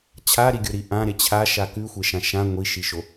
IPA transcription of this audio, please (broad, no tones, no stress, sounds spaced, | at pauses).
t͡ɕʰ a ɾ i ɡʲ o ɾ i ʔ ã ɾ e t͡ɕʰ a ʃ a k ʉ xʷ e ʃ ã ʃ ã ŋʷ i ʃ i ʃ o